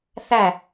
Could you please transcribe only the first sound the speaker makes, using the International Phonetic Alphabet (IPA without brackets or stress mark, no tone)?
θ